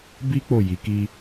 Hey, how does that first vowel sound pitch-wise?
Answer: high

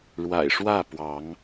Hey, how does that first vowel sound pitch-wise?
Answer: low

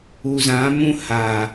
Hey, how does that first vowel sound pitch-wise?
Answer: low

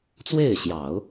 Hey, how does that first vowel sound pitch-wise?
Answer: falling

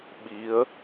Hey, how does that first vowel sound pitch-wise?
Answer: rising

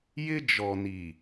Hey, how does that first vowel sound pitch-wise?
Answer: high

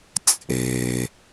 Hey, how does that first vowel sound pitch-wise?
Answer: low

